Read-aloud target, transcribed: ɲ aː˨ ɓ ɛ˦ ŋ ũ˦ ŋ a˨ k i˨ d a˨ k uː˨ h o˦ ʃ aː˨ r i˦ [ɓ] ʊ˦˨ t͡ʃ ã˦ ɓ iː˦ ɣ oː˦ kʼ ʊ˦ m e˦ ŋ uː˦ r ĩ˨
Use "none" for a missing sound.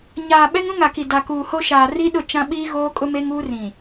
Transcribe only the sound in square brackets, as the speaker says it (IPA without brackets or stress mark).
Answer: ɗ